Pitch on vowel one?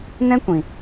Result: high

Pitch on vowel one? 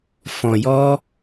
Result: low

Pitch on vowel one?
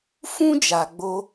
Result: high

